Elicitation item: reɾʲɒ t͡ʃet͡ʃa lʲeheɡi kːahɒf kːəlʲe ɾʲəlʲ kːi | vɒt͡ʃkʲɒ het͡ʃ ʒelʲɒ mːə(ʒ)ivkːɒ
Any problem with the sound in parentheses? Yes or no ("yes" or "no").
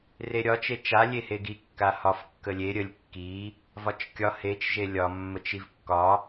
yes